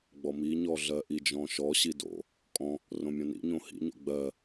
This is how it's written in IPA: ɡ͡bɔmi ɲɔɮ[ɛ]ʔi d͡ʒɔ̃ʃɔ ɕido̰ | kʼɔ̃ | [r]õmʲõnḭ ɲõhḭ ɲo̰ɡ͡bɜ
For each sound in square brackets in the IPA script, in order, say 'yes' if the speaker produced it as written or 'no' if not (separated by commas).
no, yes